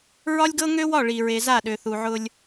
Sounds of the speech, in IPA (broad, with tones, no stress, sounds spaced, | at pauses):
ɹ ɒ˦ lʲ ɡ ɤ˦ ŋ ø˦ w ɒ˦˨ ɭ i˨ ɹ e˨ z a˦˨ ɗ ø˨ θ u˨ ʕ ʊ˦ lʲ